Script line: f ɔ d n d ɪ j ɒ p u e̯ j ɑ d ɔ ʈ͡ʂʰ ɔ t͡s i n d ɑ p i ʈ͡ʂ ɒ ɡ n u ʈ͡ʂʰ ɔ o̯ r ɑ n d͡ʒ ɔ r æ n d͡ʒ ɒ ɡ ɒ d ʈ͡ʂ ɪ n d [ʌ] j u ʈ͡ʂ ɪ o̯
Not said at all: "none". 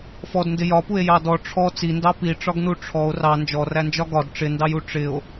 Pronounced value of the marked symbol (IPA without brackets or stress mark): ɑ